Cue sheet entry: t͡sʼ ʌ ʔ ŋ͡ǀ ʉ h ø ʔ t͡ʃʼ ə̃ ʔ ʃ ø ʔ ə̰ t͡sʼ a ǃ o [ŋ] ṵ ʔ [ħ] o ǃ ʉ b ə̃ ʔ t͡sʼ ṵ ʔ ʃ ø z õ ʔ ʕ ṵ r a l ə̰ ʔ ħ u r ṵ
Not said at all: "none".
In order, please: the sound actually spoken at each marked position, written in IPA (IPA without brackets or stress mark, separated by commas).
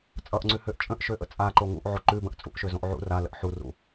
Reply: ŋ, ʕ